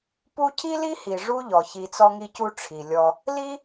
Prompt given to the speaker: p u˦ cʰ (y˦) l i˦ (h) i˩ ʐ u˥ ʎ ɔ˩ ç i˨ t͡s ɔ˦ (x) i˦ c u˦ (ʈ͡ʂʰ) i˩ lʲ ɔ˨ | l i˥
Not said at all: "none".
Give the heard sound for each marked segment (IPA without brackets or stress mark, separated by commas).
i˦, h, ŋ, ʈ͡ʂʰ